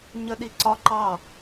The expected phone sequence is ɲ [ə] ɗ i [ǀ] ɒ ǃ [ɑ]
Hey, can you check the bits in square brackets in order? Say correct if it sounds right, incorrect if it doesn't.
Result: correct, correct, correct

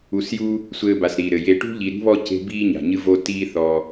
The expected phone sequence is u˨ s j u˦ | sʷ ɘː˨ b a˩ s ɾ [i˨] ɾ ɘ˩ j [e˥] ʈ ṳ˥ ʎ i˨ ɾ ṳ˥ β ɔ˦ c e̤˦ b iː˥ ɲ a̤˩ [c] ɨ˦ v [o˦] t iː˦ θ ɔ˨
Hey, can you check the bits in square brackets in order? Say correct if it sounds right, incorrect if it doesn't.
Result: incorrect, incorrect, incorrect, correct

